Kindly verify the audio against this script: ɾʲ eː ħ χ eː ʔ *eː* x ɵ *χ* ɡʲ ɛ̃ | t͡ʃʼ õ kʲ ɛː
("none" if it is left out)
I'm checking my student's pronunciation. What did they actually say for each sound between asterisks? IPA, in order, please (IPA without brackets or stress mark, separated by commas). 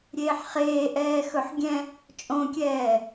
ɛː, ħ